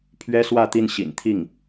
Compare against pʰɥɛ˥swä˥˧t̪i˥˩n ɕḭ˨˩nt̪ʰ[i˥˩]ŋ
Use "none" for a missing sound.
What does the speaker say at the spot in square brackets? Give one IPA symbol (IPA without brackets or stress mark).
i˥˩